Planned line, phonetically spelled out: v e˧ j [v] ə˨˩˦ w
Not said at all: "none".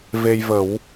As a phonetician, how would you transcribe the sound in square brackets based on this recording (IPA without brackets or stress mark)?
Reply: v